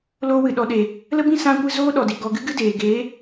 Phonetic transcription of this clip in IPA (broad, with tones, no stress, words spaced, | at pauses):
loː˧wɨ˨ɗɔ˨ɗeː˨ | lə˦bĩ˦ sã˧kʷɨ˧ zoː˦ɗɔ˨di˨ ɡɔ˧ ɡɨ˦ɡɨ˦deː˨ ɡeː˨˦